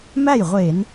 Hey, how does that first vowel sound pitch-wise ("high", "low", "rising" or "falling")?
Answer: falling